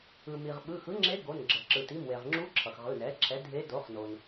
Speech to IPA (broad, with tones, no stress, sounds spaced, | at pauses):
ɯ˩ m i˩ ʁ ɓ ɯ˩˧˩ x ɯ˧˥ ŋ͡ǁ e˧˥ ɡ o˩˧˩ n ɡ͡ǁ ʌ˩ ǁ ɯ˩ t i˩˧˩ m w e˩ ʁ ŋ͡ǁ u˧˥ ǁʰ ʌ˩ x ʁ ɯ˩˧˩ n ɛ˩˥ ǁʰ ɛ˩˥ dʱ e˧˥ d o˩˥ χ n o˩ n